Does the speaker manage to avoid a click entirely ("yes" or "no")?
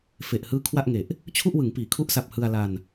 yes